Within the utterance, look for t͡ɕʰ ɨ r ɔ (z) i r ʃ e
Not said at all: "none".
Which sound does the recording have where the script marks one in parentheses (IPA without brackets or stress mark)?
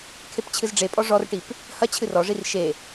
ʐ